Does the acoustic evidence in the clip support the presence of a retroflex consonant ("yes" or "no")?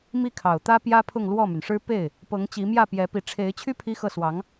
yes